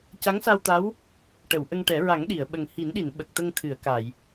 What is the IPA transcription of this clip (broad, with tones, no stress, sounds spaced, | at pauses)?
c a˧˥ ŋ s a˧ w t̪ a˧˥ w | ʈ ə˨˩˨ w ʔ ə˧ ŋ ʈ ɛ˨˩˦ ɹ a˨˩˦ ŋ ɗ i˨˩˨ ə̯ ɓ ə˨˩ ŋ h i˨˩˦ n ɗ i˨˩˨ n ɓ ə˨˩ k̚ t̪ ə˧ ŋ t̪ʰ ɨ˨˩˨ ə̯ k a˨˩˨ j